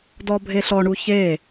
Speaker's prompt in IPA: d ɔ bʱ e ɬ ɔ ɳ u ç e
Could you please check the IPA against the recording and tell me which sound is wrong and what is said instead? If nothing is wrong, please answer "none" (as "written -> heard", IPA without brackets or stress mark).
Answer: none